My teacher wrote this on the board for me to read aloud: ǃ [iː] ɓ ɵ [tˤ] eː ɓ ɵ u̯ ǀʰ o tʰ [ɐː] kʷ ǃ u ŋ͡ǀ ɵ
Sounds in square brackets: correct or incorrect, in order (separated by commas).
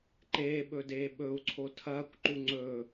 incorrect, incorrect, correct